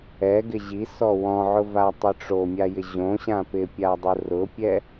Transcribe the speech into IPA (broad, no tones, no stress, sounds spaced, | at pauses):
ɛ ɡ ɪ ʑ i s ɔ w ɔ̃ ʕ ʊ v a tˤ ɪ ʈ͡ʂ o mʲ a j ɪ ʑ õ ɕ ã p ɪ pʲ a dˤ ʊ r ʊ pʲ ɛ